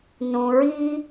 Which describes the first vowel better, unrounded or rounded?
rounded